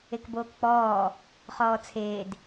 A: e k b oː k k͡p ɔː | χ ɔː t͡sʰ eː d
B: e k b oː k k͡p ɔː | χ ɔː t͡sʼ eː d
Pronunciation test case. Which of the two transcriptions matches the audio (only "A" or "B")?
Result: A